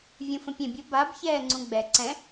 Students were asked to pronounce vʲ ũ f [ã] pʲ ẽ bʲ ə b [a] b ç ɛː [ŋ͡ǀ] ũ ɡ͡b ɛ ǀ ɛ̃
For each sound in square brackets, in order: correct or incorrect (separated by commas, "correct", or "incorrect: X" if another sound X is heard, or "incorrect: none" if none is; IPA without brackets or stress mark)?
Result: incorrect: ə̃, correct, correct